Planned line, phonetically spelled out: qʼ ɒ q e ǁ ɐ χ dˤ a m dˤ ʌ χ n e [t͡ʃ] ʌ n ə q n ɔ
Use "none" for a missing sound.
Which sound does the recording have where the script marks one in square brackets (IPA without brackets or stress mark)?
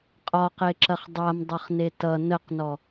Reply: t